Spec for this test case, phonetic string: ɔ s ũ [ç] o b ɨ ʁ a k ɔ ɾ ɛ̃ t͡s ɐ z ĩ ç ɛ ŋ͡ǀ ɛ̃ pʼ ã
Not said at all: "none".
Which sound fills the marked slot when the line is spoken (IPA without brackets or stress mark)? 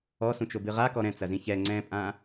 t͡ʃ